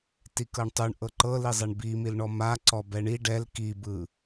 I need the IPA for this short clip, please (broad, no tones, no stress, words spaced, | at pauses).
tikɤɳtˤuɳ ʔɤǃɤlizˤɛɳ bimilɳɔ ma ǀɔbɛɳi ɖɛl kibɯ